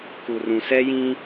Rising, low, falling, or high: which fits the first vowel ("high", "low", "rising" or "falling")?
low